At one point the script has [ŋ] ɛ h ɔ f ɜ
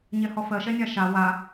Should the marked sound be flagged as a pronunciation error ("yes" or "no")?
yes